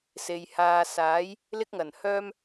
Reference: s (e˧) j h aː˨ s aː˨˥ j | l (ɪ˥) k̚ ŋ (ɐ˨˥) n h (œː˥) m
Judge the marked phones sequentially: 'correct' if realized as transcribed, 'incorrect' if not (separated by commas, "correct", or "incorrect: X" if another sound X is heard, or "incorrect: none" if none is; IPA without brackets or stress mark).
incorrect: e˨, correct, incorrect: ɐ˨˩, correct